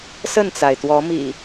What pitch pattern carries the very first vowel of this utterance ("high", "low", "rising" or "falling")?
falling